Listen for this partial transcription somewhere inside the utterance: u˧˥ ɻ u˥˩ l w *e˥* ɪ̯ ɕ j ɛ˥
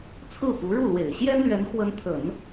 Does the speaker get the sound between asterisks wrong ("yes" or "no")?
yes